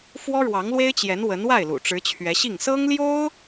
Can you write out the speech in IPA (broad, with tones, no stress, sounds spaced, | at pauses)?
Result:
f w ɔ˥ ɻ w ɑ˧˥ ŋ l w e˥ ɪ̯ t͡ɕ j ɛ˧˥ n w ə˧˥ n w a˥˩ ɪ̯ l ṵ˨˩ ʈ͡ʂ ɻ̩˧˥ t͡ɕʰ ɥ ɛ˧˥ ɕ i˥˩ ŋ s ɤ˥ ŋ l j o˥ ʊ̯